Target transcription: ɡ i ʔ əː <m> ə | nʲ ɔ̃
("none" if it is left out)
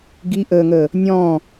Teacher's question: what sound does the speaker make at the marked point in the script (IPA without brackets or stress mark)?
ŋ